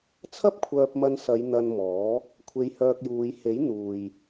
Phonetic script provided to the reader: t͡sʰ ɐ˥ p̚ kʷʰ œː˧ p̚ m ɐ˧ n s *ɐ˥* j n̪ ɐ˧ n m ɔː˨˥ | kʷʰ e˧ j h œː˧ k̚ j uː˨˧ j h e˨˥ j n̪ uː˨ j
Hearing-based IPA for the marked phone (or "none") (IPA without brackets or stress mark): ɐ˨˧